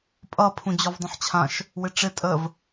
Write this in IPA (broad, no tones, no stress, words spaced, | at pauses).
pʼʌ pʰũd͡ʑɔvdˤə̃ħt͡ɕʰãʃ | wɪʈ͡ʂɪ tʼəv